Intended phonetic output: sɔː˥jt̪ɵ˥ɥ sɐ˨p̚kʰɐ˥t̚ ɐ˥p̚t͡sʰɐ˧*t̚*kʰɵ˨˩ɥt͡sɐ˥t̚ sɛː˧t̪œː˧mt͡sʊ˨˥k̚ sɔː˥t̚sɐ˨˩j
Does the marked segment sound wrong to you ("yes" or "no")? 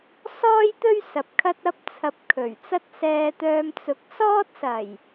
yes